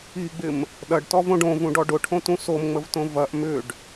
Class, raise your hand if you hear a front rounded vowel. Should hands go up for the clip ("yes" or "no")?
yes